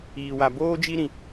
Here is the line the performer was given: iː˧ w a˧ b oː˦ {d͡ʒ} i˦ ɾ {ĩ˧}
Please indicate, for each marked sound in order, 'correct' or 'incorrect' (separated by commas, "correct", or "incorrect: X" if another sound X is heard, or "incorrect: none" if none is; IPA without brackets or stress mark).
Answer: correct, correct